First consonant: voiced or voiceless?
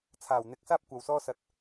voiceless